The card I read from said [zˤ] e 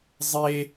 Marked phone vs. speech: correct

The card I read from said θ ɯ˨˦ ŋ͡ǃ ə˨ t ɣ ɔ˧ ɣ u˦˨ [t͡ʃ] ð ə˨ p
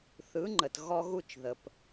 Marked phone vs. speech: correct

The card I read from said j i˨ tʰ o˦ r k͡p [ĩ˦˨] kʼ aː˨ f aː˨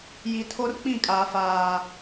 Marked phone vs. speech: correct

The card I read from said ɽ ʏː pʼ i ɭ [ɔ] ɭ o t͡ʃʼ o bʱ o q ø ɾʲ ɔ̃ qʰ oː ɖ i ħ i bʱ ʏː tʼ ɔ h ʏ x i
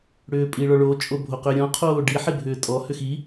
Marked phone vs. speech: correct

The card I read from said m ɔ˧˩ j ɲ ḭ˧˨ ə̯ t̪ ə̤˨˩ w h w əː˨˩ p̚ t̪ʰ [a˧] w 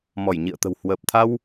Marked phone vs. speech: correct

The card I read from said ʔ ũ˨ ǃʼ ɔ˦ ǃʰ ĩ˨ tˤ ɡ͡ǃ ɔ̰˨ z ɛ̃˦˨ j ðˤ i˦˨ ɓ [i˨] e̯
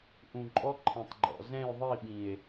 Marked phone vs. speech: incorrect: ĩ˨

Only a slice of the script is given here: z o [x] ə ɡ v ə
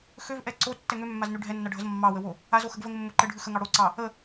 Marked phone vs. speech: correct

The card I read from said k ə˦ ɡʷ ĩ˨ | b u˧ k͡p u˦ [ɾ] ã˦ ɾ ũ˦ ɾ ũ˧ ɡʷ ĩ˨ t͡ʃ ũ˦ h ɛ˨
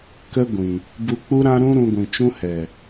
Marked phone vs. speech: correct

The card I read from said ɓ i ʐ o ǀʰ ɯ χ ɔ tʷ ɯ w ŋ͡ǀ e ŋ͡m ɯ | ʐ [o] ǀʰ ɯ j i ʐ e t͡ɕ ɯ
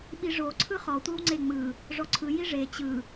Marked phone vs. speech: incorrect: ɔ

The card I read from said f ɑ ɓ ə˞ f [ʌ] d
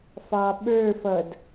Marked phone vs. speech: correct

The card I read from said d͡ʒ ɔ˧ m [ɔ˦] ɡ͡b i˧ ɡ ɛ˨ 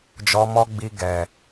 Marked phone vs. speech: correct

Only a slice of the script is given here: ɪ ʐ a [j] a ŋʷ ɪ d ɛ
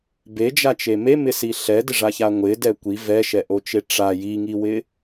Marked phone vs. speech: incorrect: ç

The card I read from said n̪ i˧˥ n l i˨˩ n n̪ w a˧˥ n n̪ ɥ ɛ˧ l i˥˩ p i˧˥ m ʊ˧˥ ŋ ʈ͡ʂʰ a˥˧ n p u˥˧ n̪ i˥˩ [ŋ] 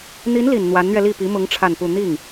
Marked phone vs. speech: correct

